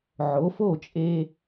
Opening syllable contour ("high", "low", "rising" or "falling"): rising